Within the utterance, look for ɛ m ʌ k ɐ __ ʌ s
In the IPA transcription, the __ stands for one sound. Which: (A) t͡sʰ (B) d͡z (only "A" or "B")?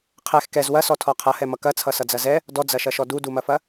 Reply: A